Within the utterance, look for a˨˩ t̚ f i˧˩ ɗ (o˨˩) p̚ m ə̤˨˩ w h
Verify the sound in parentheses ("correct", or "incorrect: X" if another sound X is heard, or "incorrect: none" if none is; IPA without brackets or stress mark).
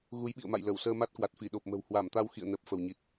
correct